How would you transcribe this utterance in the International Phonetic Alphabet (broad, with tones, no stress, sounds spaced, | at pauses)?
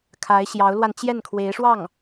kʰ a˧˥ ɪ̯ ɕ j ɑ˧˥ ʊ̯ l w a˧ n t͡ɕ j ɛ˥˩ n kʰ w e˧˥ ɪ̯ ʂ w ɑ˥˩ ŋ